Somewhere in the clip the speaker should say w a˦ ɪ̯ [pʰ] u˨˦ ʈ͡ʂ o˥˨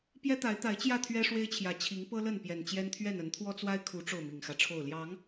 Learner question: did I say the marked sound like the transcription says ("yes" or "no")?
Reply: no